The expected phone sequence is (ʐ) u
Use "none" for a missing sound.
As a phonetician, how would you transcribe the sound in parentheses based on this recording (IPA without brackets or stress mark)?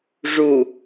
ʐ